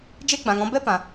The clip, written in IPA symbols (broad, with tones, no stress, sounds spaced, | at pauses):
d͡ʒ e˦ ɡ͡b ã˨ ŋ ɔ̃˧ b ɛ˦ p ã˨